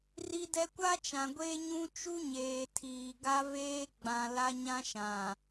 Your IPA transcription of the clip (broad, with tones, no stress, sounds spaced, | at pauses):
r i˦ d ɛ˦ kʷ a˦ t͡ʃ ã˨ ɡʷ eː˦ ɲ ũ˦ t͡ʃ u˦ ɲ eː˨ tʰ iː˨ ɡ a˦ v eː˦ ɡ͡b ã˨ l a˦ ɲ ã˦ ʃ ã˨